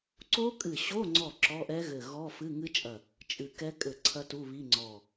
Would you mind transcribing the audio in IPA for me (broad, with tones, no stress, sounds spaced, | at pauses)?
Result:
ǀ o˦˥ kʼ ɨ˧˩ ɕ o˧˥˧ ŋ͡ǀ ɔ˧˩ ǁ ɔ˧˥˧ ʔ ɛ˦˥ ɣ ɘ˧˩ ɣ ɔ˧˥˧ f ɨ˧˥˧ ŋ ɨ˦˥ t͡ʃʼ ɐ˧˩ | t͡ʃʼ ɨ˧˩ k ɛ˦˥ kʼ ɘ˧˩ ǀʰ ɐ˦˥ t u˧˥˧ β i˧˥˧ ŋ͡ǀ ɔ˧˩